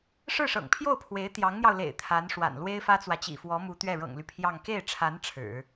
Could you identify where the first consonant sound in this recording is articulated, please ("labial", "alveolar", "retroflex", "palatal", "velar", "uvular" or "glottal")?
retroflex